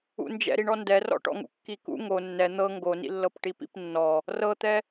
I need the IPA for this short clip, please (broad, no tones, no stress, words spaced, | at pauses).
ṵnd͡ʒɛ̰ɾiɳɔ ndɛrɔ̰ʈɔ̰ŋṵ kːikṵ ŋo nːɛ n̪ɤ ŋɡonḭlːɤp ʈipḭpnːɔ | rɤt̪ɛ